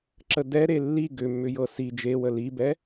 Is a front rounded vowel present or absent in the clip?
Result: present